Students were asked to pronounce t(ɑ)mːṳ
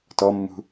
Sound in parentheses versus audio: incorrect: ɔ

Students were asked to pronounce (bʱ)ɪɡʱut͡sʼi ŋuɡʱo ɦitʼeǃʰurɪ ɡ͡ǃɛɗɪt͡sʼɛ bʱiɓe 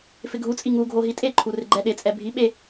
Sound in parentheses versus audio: incorrect: f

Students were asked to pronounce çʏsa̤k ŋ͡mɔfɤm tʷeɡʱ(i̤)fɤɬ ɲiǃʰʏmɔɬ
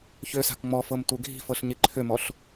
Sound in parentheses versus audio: correct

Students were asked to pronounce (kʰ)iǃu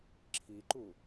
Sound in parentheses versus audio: incorrect: ǁʰ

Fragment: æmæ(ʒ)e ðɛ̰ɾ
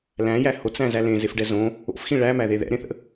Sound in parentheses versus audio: incorrect: ð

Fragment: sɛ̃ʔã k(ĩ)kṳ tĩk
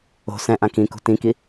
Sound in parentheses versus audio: correct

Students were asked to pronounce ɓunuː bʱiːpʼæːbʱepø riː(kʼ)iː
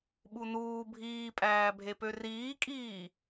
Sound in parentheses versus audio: correct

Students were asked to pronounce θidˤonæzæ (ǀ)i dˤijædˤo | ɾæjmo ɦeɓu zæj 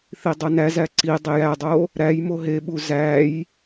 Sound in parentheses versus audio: correct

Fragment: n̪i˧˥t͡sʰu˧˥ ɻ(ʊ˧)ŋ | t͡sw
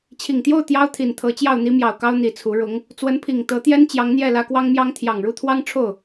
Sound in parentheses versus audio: incorrect: ʊ˧˥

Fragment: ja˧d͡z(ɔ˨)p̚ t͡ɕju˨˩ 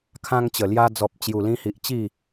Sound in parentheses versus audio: correct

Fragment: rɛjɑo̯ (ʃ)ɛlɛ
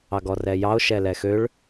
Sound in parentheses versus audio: correct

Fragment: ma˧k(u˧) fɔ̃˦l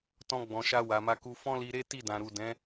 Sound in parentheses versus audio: correct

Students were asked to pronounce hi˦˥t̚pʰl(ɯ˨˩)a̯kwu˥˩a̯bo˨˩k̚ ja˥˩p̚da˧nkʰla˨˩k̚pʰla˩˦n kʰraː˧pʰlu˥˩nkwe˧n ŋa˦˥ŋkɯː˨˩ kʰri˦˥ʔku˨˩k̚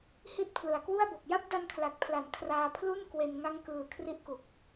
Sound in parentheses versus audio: correct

